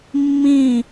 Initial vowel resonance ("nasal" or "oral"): nasal